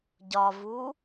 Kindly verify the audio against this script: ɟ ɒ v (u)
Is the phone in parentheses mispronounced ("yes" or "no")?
no